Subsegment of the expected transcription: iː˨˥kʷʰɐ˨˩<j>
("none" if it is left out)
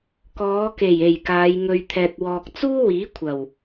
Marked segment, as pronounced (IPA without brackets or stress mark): w